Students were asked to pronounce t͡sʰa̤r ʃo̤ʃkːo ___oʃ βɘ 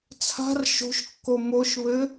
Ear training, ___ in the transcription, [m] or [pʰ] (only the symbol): m